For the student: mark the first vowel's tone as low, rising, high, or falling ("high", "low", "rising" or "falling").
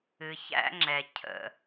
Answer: low